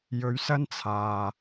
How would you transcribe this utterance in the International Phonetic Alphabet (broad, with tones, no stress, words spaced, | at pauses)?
jɵ˨˧ɥsɐ˥n t͡sʰaː˨